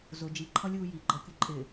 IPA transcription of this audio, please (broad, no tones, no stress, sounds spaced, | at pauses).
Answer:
z ʊ d͡ʒ i ǃʰ ʌ lʲ uː j i ɡ͡ǃ ʌ kʲ ə ǃʼ ɪ